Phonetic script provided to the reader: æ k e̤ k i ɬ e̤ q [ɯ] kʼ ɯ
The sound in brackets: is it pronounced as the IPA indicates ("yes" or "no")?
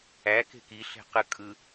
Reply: yes